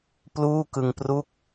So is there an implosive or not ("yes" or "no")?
no